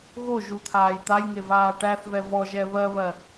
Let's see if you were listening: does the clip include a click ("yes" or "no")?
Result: no